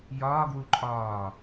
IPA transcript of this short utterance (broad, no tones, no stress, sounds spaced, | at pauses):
j ɒː ɡ w u ǃʼ ɒː